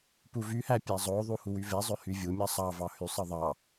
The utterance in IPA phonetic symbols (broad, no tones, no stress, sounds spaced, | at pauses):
p u v y h æ pʲ æ zˤ o ðˤ u h u w y v e zˤ ø h y vʲ u mʲ ɑ sˤ ɑ v ɑ h y sˤ ɯ ðˤ ɑ